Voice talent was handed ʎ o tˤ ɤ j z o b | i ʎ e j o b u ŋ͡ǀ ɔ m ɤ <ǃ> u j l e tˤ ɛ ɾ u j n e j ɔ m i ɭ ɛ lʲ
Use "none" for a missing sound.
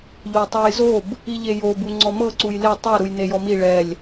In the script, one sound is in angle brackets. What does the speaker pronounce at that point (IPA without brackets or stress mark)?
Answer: ǀ